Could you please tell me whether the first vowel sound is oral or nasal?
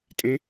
nasal